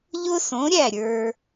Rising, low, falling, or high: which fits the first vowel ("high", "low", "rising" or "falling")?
high